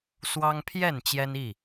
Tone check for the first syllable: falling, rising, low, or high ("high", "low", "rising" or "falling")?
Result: high